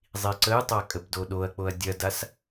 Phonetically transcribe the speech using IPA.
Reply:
zˤ i ǀ ə j tˤ a kʼ ə b d o ɗ o ɐ̯ k͡p o ɐ̯ dʲ ɐ d a s

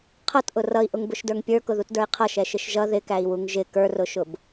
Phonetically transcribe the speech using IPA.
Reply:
qʰ ʌ t ʔ ʊ r ʌ i̯ ʔ ʊ ŋ b ʊ ʃ d ə˞ ŋ pʲ ə˞ k ʊ ð u t d ə˞ i̯ qʰ ʌ ʃ ɛ ʃ ɪ ʃ ʒ ʌ ð ɪ k æ i̯ w u ŋ ʒ ɪ k ə˞ r ʊ ʃ ʊ b

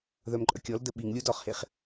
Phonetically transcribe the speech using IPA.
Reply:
ð œ m ǃʼ œ kʲ ɔ l d ə ɓ i ŋ lʲ u d ɔ χ h e χ

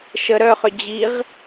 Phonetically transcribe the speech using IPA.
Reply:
ʃ ə ɾ œ χ ʏ d͡ʑ i ʁ

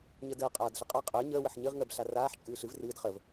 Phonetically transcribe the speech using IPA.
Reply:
ɲ ə d əː qʼ aː d ɬ ə qʼ a qʼ əː ɲ əː w ə ħ ɲ ɨ ʁ ŋ əː b ɬ a r aː ħ t͡ʃʼ ɨː ɬ ɨ v r ɨː d χ ə v

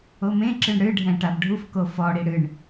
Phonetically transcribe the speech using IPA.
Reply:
o m ẽ ǁ ɨ ɳ ɽ ɨ ɖʱ ɛ̃ ʈ a b ɖʱ u f k o f ɔ ɽ i ɽ ɨ ɳ

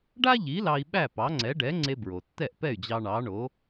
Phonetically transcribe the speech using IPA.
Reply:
ɖ a˥ ʎ i˩˥ l ɑ˧ i̯ ɓ æ˥˩ p ɑ˩˥ ŋ͡ǀ ɛ˩˥ ɖ ɛ˩˥ ŋ͡ǀ e˧ b ɹ o˩ tː ɛ˥˩ ʔ p ɛ˥˩ y̯ d͡ʑ ɑ˧ ɳ ɑ˩˥ ɳ o˩˥

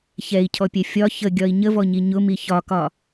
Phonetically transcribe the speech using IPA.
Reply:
ç ɛ i̯ cʰ ɔ pʲ ɛ fʲ ɒ ç ə ɡʲ ɒ i̯ ɲ ə v ɔ ɲ i ɲ ʊ m i ç ɒ k ɒ

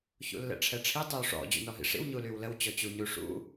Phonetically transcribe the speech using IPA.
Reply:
ç ṵ lː ɛ̰ ʈ͡ʂʰ ɛ ʈ͡ʂʰ i tˤ y w ʂ ɔ̰ d͡ʑ ṵ n ɔ ɦ ḭ ʂ ḭ w ɲ u l y w l ə w t͡ɕ ɔ t͡ɕ u ɲ u ʂ ṵ

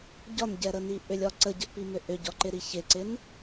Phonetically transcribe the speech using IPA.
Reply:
ɟ ɒ n ɟ ɛ ɾ ə n i ʔ ʏ lʲ ɒ ǀ ə ɟ ə ʔ p i m ʏ ʔ ʏ ɟ ɒ ǃ ɪ ɾ i ç ɪ ǀ ɪ n

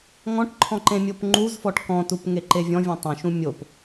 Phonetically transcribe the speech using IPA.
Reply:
ŋ ɔ̃ ʈ ǃʰ ɔ̃ ǃ ẽ mʲ o p ŋ͡ǃ u z f ɔ ʈ k ɔ̃ t u p ŋ e ǃ e vʲ ɔ̃ vʲ õ tˤ õ ʃ ũ mʲ o p

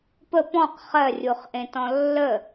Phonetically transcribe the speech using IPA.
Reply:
p ə p ɔ̃ q χ ɜ rʲ u χ ʔ ẽ t ɔ̃ lː ə

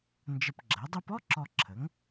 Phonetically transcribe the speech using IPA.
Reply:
n d͡ʒ ə˧ p ɡ͡ǁ ɜ˩˥ dˤ e˥ p ɔ˥ ǁ ɔ˧ ǁʰ ə˩˥ ŋ

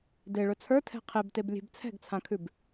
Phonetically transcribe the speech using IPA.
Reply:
d e ɭ ɵ t͡sʰ ə˞ tʰ ɛ̤ qʰ e b t e b lʲ e̤ b t͡sʰ ɛ̤ ɡ t͡sʰ ã kʰ ʉ b

